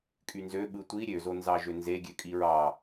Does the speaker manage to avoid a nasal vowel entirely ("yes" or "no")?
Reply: yes